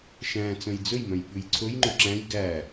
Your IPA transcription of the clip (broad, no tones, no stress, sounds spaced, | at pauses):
ʃ æ̃ t͡s œ̃ j d͡z ɵ j m œ̃ j ɓ ʉ j ǀʰ ɵ j ŋ͡ǃ ɵ ǁ æ̃ j ɡ æ